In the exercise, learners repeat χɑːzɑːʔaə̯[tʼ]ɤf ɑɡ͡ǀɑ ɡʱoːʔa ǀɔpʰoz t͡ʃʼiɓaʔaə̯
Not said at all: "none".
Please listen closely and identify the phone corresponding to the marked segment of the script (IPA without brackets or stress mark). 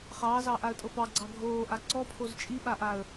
tʼ